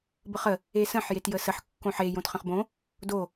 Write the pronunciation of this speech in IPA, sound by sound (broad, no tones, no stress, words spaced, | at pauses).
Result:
bəχə | esə̃ħ jetjəsəħ kːõħe jõtχə̃χbõ | do